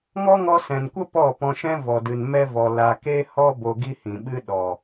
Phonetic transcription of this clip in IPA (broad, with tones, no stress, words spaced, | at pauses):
ŋɔ˦ŋɔ˧sɛ̃˨nkʷə˦ pɔ˦˨pɔ̃˧ʃɛ̃˦ vɔ˨dɨ˨n mɛ˧vɔ˨ la˨ke˧hɔ˧ bo˧ɡi˦hĩ˨ɓɨ˦ ɗɔ˨